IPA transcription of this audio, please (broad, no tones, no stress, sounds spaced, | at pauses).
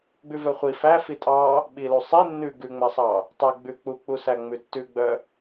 ɡ͡b ʉ v œ χʷ i f æ f i tʼ ɑ | ɓ i l u sˤ i nː ʉ ɡ ʉ ŋ͡m æ sˤ ɑ | tˤ æ ɡ͡b ʉ k͡p u k͡p u s æ ŋ͡m ʉ tː ʉ ɡ͡b œ